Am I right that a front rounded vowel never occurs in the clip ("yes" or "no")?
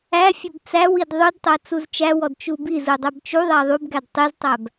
yes